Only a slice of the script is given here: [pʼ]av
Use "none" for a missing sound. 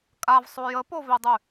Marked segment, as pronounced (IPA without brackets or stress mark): kʼ